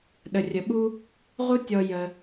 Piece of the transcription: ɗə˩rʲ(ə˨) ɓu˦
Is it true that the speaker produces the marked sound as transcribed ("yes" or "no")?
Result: no